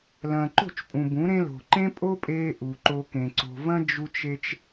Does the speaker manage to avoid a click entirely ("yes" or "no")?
no